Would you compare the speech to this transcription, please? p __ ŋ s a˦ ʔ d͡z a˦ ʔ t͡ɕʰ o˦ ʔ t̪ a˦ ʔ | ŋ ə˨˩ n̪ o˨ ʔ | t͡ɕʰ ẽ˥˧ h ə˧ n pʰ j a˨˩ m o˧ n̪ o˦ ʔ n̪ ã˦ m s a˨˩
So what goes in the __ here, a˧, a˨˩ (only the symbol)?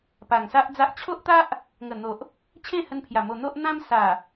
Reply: a˨˩